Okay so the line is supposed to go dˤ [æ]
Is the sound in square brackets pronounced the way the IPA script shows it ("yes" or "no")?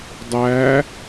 yes